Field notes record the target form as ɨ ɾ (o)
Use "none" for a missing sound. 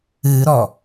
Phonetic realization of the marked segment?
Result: ɔ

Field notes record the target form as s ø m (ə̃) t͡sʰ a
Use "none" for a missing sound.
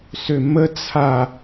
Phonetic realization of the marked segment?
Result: ə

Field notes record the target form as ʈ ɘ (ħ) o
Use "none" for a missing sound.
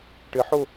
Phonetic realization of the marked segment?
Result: ħ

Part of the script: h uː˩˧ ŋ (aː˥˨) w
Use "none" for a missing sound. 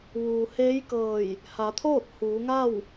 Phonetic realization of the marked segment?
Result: a˥˨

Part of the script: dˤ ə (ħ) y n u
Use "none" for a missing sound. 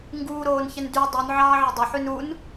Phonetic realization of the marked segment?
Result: ħ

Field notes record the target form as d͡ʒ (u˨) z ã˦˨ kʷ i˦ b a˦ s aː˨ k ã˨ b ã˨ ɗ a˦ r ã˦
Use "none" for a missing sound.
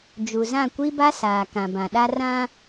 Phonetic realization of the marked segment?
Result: u˨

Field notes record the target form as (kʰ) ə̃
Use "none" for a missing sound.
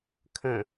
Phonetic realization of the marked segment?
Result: kʰ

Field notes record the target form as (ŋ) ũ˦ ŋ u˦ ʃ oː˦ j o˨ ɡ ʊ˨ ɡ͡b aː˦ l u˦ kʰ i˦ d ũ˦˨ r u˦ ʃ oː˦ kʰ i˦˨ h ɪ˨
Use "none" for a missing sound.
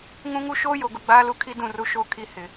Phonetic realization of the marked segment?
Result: ŋ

